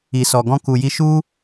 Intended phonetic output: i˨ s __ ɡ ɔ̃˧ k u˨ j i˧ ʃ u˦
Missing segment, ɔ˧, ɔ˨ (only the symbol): ɔ˨